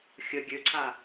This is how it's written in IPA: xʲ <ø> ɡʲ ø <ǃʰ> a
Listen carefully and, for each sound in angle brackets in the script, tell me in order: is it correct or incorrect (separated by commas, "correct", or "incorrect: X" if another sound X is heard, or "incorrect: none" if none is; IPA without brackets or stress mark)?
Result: incorrect: ə, incorrect: ǀʰ